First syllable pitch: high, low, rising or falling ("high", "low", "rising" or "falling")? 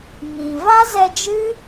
low